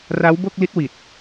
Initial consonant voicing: voiced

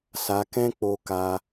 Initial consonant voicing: voiceless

